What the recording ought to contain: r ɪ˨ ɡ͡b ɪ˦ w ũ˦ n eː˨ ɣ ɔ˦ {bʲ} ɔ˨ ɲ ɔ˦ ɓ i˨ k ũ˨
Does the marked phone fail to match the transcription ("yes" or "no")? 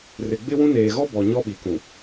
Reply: yes